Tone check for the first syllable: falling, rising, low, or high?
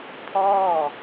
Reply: falling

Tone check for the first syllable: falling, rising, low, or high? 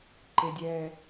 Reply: high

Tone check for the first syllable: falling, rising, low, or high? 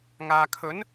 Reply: low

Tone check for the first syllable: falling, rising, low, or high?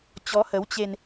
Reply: rising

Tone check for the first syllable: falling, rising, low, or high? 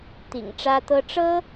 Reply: low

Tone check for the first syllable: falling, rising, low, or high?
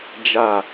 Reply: falling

